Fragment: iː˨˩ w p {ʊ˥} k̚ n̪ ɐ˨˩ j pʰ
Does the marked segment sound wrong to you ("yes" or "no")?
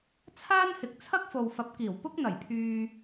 no